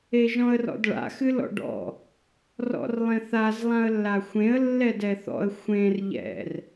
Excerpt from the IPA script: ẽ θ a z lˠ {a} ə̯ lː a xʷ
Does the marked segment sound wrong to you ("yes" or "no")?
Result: yes